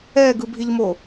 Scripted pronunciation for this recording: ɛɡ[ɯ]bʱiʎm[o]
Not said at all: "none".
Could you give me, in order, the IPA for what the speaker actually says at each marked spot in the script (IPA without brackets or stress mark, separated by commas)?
ɯ, o